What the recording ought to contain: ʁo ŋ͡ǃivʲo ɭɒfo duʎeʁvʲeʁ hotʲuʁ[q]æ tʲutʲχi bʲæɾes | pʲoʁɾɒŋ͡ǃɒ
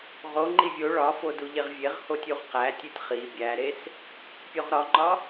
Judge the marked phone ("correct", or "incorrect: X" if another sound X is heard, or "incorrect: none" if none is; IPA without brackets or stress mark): correct